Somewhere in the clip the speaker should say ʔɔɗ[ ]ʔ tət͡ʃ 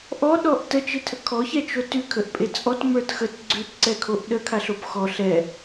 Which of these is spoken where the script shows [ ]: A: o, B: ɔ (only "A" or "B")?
B